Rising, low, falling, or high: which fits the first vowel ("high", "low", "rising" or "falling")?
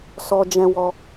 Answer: high